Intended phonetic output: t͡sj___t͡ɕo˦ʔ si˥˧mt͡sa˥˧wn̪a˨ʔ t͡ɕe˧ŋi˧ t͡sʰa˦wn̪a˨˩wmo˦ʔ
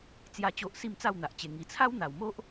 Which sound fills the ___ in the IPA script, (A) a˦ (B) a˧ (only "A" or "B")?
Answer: A